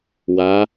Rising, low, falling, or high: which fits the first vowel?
rising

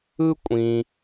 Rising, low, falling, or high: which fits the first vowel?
high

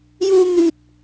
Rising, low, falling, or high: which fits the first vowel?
high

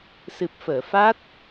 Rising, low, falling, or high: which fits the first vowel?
low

